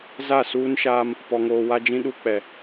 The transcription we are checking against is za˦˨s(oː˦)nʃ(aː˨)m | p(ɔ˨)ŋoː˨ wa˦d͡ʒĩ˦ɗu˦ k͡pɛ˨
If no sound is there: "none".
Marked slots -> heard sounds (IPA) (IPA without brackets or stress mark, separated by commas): uː˦, aː˦, ɔ˨